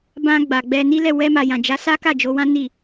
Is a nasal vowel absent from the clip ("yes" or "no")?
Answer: no